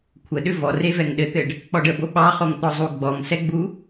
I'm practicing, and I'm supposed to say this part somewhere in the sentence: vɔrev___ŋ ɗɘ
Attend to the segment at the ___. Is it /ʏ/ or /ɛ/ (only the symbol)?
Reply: ɛ